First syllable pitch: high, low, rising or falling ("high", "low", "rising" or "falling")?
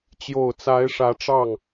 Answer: low